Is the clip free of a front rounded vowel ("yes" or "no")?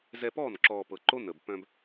no